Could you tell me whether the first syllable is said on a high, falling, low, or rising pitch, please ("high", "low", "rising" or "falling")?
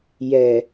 low